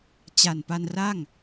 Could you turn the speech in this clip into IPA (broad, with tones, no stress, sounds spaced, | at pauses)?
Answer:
t͡ɕ a˨˩ n p a˧ n r a˥˩ ŋ